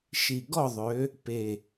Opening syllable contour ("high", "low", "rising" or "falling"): low